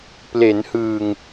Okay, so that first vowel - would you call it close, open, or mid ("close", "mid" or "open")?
mid